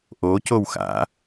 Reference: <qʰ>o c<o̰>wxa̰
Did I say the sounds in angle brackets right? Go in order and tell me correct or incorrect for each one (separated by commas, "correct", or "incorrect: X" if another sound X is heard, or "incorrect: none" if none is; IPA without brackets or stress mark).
incorrect: ʔ, incorrect: o